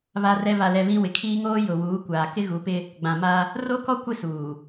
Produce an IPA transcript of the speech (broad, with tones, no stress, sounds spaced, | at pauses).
β a˦ r ɛ˦ β a˨ l ɛ˨ β ĩ˦ w ɪ˨ kʰ iː˦ ŋ oː˦ j ʊ˨ w uː˨˦ kʷ aː˨ k ɪ˦ ɣ u˨˦ p ɪ˦ | ɡ͡b ã˨ m a˦ | r o˦ k ɔ˦ kʷ ɪ˦ s uː˨